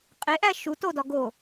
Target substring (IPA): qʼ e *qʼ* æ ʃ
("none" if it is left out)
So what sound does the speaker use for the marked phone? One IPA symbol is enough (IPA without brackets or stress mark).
ʔ